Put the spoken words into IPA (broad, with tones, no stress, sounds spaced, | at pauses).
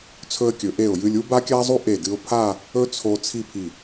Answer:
t͡sʰ ɵ˧ ə̯ kʲ ɵ˩˧ ʔ e˧˩ ʊ̯ j ɨ˧ lʲ u˥ b a˥ kʲ a˥ zˤ u˥ ʔ e˧˩ d ɨ˧ ʊ̯ pʰ a˥˧ | ɵ˥ t͡sʰ o˧ t͡sʰ i˥˧ pʰ i˧˩